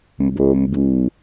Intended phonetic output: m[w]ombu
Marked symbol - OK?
no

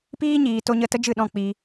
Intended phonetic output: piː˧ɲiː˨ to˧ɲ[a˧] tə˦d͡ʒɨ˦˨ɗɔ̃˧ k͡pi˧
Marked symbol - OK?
no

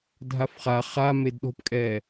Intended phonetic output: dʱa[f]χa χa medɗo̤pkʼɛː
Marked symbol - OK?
yes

